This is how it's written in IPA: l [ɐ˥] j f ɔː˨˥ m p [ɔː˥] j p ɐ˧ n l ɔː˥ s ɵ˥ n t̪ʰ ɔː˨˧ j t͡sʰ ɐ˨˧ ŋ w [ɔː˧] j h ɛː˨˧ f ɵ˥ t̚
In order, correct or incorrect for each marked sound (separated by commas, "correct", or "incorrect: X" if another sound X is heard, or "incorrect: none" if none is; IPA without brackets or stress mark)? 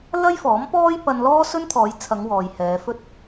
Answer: correct, correct, incorrect: ɔː˨